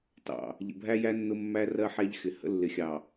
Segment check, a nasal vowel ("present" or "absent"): absent